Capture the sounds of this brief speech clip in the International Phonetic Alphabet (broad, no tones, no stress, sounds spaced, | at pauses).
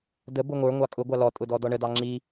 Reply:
d ə b ʊ ŋʷ ə˞ ŋʷ ɑ kʼ ʊ ɡʷ ɑ l ɔ tʼ ʊ d ɔ d ɔ ɳ ə d ɑ ŋ͡ǁ i